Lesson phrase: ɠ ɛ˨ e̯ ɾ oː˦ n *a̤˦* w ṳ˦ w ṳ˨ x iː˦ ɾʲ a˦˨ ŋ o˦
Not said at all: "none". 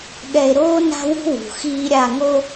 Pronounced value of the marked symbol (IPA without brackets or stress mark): a̤˦